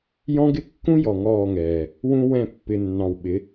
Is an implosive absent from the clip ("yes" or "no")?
no